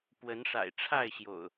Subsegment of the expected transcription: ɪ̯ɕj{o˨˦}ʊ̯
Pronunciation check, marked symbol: incorrect: o̰˨˩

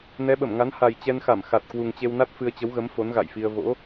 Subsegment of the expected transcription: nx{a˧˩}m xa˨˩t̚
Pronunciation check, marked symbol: correct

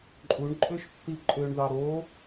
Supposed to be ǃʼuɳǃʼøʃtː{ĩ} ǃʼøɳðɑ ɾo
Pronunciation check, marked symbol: incorrect: i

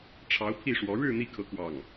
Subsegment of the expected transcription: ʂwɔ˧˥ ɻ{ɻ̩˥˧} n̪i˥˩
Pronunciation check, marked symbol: correct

